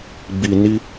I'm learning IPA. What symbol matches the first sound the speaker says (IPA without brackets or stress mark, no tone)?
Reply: ɡ͡b